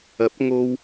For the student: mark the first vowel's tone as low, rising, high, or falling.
rising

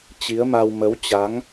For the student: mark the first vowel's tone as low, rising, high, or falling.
rising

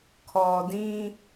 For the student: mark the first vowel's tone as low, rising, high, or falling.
low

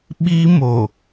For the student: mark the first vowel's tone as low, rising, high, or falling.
high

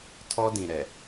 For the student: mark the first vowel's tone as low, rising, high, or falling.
high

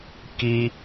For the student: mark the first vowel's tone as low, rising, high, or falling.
high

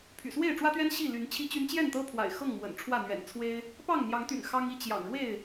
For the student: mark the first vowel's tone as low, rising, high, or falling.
low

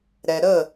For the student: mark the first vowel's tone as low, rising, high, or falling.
low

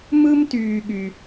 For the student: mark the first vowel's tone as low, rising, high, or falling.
high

